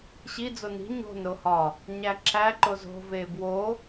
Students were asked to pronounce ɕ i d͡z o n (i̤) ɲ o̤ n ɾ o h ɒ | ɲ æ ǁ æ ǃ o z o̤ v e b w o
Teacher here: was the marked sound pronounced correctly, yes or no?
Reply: yes